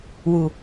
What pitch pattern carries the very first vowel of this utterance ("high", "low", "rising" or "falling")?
low